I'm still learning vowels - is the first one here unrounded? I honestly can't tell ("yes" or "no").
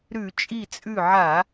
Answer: no